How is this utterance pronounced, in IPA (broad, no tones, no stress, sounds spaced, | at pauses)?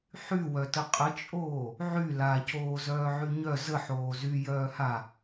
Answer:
ħ y w œ t ə qʼ ə t͡ʃʼ oː | ʕ y l a c oː z œː ʕ y ɲ œ z ə ħ oː z y j œː h a